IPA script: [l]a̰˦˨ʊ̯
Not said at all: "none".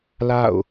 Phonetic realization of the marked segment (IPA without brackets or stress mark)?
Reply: l